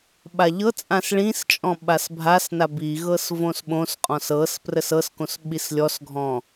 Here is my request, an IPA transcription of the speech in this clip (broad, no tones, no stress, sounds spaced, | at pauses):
ɓ a ʎ ɤ t͡sʼ ã s ɭ ĩ s t͡ʃʼ ɔ̃ ɓ a s bʱ a s n a b i ɣ ɤ s v õ s ɓ õ s qʼ ɔ̃ s ɤ s p r ə s ɤ s k õ s ɓ i s lʲ ɔ s ɡʱ ɔ̃